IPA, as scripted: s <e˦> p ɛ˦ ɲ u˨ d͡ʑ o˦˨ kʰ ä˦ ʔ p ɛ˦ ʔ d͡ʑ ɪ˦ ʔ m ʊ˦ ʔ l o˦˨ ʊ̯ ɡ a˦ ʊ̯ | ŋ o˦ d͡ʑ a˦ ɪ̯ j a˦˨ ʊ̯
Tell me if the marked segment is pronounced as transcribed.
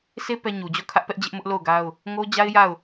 yes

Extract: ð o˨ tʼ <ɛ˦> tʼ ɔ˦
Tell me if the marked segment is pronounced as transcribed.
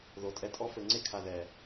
no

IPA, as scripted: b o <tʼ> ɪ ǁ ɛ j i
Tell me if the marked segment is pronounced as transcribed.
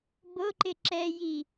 no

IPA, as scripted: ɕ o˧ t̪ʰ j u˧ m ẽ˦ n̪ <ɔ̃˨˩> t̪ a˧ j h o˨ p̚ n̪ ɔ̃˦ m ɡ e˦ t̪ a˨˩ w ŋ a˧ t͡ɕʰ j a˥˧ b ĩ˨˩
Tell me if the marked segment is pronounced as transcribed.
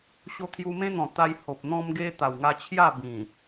yes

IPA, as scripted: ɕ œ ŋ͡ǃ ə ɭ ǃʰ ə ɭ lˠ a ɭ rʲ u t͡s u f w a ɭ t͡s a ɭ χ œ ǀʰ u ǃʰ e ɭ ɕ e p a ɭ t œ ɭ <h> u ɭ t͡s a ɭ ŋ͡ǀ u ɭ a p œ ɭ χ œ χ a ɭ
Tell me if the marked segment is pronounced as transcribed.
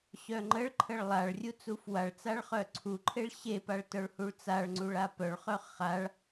yes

